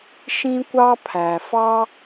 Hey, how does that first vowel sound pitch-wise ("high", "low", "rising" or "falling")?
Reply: high